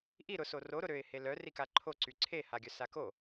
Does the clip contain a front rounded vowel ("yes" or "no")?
yes